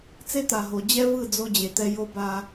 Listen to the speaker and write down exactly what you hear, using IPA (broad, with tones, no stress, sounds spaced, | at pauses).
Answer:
t͡s e˦ t̪ a˨ ɦ o˨ d͡ʑ ɛ˦ v ɯ˦˨ d͡z o˦ d͡ʑ e˨ t̪ ɛ˦ j o˦ b a˦